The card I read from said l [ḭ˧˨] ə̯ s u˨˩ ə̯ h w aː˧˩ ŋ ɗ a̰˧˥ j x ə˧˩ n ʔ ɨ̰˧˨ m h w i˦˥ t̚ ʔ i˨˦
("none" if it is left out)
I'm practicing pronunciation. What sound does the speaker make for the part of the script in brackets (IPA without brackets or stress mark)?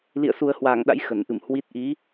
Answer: ḭ˧˨